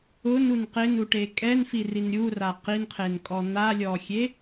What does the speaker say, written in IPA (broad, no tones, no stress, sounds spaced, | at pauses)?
ʊ n u n q ɪ n u ʈ e kʼ ɛ n f i r i n ɾʲ u r a q i n qʰ e n kʼ ɔ n̪ a lʲ ɔ xʲ e